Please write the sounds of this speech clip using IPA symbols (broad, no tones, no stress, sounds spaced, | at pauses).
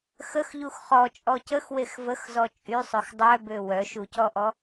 x ə x ʎ u x χ ɔ t͡ʃʼ ɔ c ə x w e x v ə x z ɔ t͡ʃʼ y sˤ ø x dˤ œ b ø w œ ʃ u c ɔ ʔ ɔ